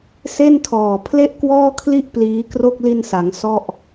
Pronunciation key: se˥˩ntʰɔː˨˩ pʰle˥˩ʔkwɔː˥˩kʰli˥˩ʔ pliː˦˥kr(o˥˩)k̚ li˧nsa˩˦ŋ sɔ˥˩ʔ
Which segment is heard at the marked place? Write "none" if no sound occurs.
o˥˩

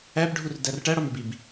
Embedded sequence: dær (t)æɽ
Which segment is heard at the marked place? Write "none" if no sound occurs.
ʈ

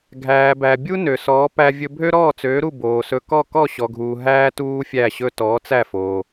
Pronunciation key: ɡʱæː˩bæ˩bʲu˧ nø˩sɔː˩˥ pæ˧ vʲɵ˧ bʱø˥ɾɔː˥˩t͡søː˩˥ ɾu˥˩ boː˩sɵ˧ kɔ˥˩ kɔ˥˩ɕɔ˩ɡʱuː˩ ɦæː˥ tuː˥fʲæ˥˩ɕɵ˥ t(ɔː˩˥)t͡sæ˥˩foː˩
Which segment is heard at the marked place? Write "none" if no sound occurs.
ɔː˩˥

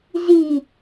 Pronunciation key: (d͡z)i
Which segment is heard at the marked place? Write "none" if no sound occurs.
z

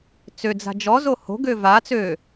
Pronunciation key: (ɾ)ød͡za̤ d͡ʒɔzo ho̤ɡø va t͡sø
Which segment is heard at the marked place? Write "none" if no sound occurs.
t͡s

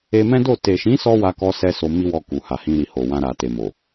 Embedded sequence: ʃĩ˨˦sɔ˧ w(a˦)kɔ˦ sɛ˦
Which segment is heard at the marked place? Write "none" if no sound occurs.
a˦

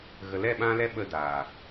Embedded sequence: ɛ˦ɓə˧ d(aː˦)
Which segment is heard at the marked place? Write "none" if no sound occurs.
aː˨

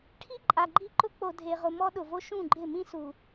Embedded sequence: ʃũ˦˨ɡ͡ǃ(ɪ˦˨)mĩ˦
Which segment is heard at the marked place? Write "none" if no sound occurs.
ɪ˦˨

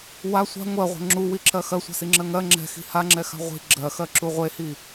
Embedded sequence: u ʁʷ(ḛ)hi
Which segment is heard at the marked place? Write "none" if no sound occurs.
e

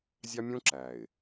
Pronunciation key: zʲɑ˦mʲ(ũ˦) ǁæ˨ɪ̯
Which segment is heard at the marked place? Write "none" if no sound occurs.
ũ˦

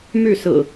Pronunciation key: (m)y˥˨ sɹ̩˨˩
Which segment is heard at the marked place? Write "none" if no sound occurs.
m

